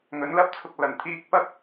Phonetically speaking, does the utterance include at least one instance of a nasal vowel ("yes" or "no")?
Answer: no